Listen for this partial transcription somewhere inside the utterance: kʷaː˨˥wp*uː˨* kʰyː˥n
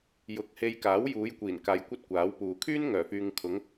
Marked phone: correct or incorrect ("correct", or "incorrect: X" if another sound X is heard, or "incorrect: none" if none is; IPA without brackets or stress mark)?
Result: correct